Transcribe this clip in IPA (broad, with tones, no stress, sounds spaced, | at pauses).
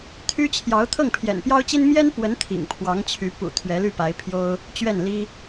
t̪ʰ y˥ t͡ɕʰ j ɑ˧˥ ʊ̯ t̪ʰ ɤ˥˩ ŋ pʰ j ɛ̰˨˩ n p j ɑ˥ ʊ̯ t͡ɕ i˥ n m j ɛ˥ n p w ə˧˥ n t̪ʰ ḭ˨˩ ŋ pʰ w ɑ˧˥ ŋ t͡ɕʰ y˧˥ p ṵ˨˩ t̪ʰ ɥ ɛ˧˥ l y˥˩ p a˧˥ ɪ̯ pʰ j o˥ ʊ̯ | t͡ɕ ɥ ɛ˥˩ n l i˥